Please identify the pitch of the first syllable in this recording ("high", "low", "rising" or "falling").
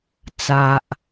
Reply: low